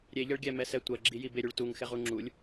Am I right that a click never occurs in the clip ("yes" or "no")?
no